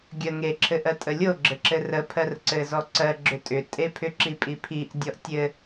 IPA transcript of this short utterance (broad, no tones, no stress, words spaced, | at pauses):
ɡʲə ŋe ǁʰɘʔɜtʼəlʲo ɡ͡ǁɘǁɘrə pʰɜrǀɘzɔǀɜ ɡ͡ǁʏtʼʏ tʼepʰʏ ǁipʼipʰiʔ dʲɔʔtʲɘ